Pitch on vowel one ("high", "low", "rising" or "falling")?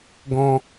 high